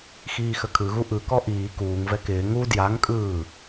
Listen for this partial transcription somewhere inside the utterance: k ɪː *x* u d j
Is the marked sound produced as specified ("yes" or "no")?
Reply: no